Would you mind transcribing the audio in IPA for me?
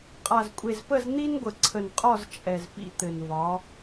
qʼ a˨ z kʷʼ e˨ z p ə˦˨ z n̪ i˦ n ɡʷ ə˨ ǀʰ ə˨ n qʼ ɒ˦˨ z t͡ʃʼ ɛ˨ z p ḭ˦ t̪ ɘ˨ n v ɒ˨˦

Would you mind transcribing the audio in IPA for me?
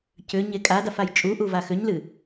c ʏ ɲ e kʼ a d a f a j t͡ʃʼ u ʔ u v a x ʏ ɲ l ɨ

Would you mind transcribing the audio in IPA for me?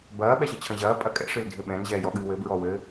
b ɐː ɓ ɛ ɕ ɨ t͡ɕʰ ɐ̃ ʑ ɐː pʼ ɐ kʼ ɛ̰ ʂ ɨ l dʱ ɘ ɓ ɛ̃ n ʑ ɛː j ɔ ɠ ɨː w ɘ b ɹ ɔ w ɘ

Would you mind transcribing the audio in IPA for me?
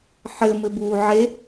ħ ɘ m ɘ b uː ʕ e

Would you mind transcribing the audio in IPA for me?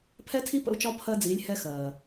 pʰ ɛ˧˥ tʰ i˧˥ p ə̰˧ u̯ t͡ʃ ɒ˧˥ pʰ ɜ˧ d͡z iː˩˧ lʲ h ɛ˧ x ɜː˩

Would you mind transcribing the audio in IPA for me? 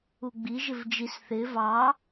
u ɡ͡b i ʒ ɪ v d͡ʒ i s θ ɪ v ɑ

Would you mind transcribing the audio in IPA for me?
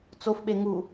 t͡s o f ɓ e ŋ u

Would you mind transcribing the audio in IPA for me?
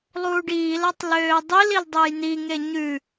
lˠ uː ɖ iː l a tˤ l øː dˤ i l i l dˤ ɛ j n i ŋ e ɲ ʉ

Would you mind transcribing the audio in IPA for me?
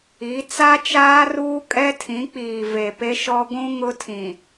i˨˦ t͡s a˦ t͡ʃ aː˦ r uː˦ kʼ ɛ˦ tʰ ĩ˨˦ k͡p iː˨ v e˨ p e˦ ʃ ɔ˦ ɡʷ ũ˦ ŋ ʊ˦ tʰ ĩ˨

